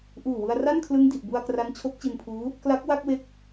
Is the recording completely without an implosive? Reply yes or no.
yes